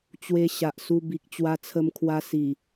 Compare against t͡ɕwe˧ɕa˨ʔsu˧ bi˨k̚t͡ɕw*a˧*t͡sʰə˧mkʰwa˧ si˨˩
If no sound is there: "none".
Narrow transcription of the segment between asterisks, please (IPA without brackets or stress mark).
a˧